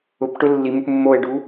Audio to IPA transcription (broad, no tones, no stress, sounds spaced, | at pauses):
ʊ p ʈ ʊ lː i m u p mː o e̯ ɖ u